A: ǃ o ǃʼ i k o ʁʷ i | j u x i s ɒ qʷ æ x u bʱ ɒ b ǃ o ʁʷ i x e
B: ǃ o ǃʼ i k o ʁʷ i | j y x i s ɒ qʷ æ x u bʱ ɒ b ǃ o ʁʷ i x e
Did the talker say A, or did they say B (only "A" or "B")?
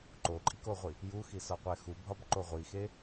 A